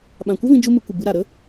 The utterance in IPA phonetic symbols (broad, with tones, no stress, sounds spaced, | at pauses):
ɓ ã˨ kʷ ə˦ v ĩ˧ d͡ʒ u˦ m ɨ˧ kʷ ɨ˨ b ɨ˧ ɾ a˨ ɾ ə˦